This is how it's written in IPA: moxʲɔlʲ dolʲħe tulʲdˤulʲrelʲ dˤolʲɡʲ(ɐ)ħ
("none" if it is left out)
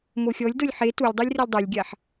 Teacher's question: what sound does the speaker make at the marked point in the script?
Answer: a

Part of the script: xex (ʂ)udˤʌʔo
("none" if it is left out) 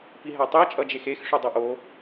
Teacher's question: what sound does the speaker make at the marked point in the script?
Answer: ʂ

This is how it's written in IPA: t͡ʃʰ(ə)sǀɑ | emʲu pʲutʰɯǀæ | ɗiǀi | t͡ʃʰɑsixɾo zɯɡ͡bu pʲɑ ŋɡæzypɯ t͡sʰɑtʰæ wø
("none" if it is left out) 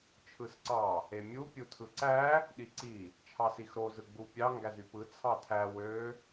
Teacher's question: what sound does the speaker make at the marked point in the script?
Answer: ɯ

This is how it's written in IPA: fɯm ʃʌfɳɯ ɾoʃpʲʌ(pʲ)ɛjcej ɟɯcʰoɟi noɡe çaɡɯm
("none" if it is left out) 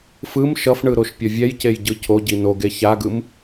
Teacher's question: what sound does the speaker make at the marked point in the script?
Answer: vʲ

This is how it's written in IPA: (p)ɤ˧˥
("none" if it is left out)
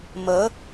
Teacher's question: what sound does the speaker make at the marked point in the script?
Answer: m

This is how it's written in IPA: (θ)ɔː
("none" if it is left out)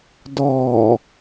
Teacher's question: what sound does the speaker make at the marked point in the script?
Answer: d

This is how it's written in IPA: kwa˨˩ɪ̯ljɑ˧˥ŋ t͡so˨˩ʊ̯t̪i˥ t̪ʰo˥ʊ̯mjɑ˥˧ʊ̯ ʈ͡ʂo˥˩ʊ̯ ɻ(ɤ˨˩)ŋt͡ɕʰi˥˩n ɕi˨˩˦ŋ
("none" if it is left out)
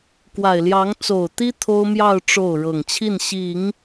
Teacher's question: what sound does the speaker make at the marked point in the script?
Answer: ɤ˨˩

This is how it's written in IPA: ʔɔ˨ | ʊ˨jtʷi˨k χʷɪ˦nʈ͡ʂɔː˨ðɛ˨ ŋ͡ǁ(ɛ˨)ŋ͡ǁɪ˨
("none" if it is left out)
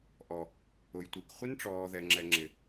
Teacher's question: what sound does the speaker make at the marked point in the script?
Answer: ɛ˨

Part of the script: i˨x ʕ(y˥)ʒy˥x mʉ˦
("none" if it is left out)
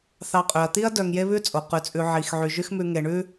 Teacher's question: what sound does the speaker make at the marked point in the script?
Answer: y˨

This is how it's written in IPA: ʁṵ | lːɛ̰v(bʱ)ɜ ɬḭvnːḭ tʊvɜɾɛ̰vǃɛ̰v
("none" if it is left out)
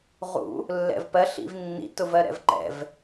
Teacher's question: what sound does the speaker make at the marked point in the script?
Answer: p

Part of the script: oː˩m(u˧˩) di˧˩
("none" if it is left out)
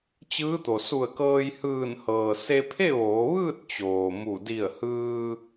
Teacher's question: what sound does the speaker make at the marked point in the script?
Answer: u˧˩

